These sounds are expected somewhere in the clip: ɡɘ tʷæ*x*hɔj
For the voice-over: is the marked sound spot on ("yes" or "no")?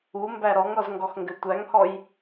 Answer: no